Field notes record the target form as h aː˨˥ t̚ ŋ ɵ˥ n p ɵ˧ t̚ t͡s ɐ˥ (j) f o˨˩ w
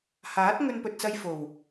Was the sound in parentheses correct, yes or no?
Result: yes